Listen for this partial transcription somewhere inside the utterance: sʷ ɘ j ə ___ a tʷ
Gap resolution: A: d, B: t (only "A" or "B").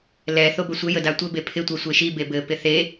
A